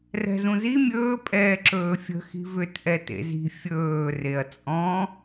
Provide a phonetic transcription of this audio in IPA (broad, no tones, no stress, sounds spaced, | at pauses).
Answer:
r ɛ̤ z ũ z i mʲ ɵː pʼ ɛː ǁ ɵː fʲ ə̤ x i̤ v ʏ t ʔ ɛ t ḛ z i̤ fʲ ɵː r e ɐ̯ t͡sʼ ɔ̃